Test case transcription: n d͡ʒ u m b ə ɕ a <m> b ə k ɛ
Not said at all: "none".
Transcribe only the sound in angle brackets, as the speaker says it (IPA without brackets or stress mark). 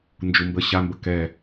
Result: m